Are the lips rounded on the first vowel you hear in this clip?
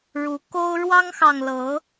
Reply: yes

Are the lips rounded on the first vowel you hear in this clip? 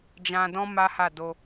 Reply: no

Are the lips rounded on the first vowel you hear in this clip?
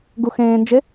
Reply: yes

